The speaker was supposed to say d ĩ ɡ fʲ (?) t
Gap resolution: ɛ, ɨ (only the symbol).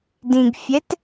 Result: ɛ